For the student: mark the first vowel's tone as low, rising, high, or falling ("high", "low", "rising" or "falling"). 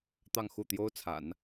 falling